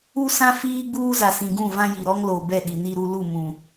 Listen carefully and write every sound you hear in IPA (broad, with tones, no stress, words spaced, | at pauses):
u˦sã˦ fiː˦ɡ͡buː˦ za˨sĩ˨ɡũ˦˨vã˦ ji˨ɾɔ˦ŋlo˨ bɛ˦˨ɗi˨ni˦ɾu˦ lu˦˨ mũ˨